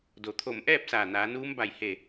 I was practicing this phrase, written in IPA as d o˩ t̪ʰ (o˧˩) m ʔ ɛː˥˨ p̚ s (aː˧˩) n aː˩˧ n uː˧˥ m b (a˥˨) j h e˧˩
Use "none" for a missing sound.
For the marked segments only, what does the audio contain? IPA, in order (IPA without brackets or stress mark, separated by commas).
o˧˩, aː˧˩, a˧˩